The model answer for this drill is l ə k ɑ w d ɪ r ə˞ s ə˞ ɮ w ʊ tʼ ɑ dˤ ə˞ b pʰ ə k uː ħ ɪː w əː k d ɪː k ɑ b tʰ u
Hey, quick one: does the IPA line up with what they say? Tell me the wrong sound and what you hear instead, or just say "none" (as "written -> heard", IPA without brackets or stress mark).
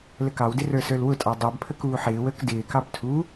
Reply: ɮ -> l